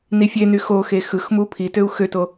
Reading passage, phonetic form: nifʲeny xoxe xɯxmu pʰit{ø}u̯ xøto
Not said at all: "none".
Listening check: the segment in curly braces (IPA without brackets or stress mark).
ø